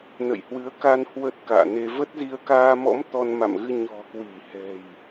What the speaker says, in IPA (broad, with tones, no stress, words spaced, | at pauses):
nə̰˧˨jhwɨ˨˦ə̯ka˧n hwə˦˥t̚ka̰ː˧˨ne˧ və˦˥t̚zi˧ə̯ kaː˧mɔ̰˧˥m t̪ɔ˧nma̰˧˨mɣɨ˧ ɲɔ̤˨˩kwi˧˩hɛ̤˨˩j